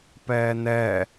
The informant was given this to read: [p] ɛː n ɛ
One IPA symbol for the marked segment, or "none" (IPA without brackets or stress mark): p